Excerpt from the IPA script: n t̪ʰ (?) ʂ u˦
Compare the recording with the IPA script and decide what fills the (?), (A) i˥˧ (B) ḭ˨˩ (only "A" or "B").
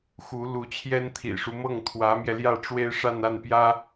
B